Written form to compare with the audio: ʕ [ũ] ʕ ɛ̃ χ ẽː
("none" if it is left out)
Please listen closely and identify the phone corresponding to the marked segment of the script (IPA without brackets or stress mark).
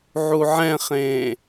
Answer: u